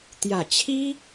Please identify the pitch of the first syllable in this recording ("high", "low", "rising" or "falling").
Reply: low